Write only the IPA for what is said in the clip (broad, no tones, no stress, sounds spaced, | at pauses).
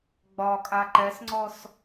ɡ͡b ɒ kʼ a ǃ ɛ s ŋ͡ǀ ɔ s